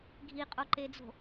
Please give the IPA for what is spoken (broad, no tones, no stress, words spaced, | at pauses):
ɡʱiqʼoǃed͡zo̤